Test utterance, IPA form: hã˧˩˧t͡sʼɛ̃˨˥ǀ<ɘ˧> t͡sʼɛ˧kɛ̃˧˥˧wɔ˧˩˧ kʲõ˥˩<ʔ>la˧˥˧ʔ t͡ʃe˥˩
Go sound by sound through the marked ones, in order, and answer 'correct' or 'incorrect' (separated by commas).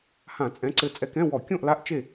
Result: correct, correct